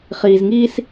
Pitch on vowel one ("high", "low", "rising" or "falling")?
low